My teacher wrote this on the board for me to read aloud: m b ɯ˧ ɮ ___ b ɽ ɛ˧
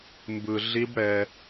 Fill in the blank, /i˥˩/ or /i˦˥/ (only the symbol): i˦˥